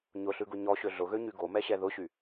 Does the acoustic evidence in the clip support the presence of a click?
no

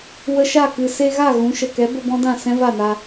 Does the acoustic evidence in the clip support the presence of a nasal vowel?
yes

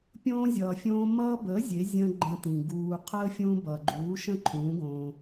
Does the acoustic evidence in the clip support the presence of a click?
yes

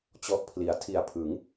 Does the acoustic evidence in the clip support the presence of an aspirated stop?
yes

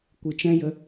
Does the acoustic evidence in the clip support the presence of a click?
no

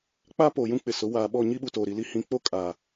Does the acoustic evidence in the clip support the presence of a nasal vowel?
yes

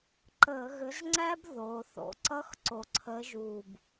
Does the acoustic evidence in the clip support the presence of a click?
yes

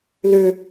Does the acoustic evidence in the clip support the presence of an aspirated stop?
no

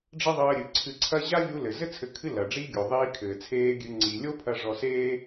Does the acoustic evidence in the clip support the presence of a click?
yes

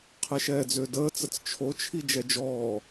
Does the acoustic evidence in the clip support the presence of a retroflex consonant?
no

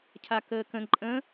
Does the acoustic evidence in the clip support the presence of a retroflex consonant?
no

